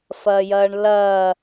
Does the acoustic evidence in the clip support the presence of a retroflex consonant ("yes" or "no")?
yes